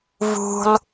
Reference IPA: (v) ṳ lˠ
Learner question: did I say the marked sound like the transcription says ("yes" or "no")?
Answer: yes